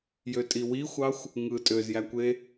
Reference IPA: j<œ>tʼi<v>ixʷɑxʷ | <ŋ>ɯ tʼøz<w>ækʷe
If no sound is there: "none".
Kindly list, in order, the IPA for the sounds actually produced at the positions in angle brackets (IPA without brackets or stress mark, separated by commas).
ø, w, ŋ, j